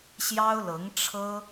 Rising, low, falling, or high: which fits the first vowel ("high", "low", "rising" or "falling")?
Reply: high